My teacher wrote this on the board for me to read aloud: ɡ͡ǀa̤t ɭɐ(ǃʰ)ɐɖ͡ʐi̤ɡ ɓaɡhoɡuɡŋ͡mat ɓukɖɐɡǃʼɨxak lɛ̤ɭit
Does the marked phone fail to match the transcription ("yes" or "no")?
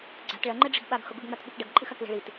yes